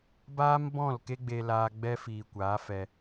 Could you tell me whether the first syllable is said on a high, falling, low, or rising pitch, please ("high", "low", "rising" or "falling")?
high